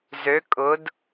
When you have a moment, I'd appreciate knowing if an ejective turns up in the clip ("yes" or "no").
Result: yes